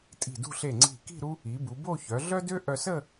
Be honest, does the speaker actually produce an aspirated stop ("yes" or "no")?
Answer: no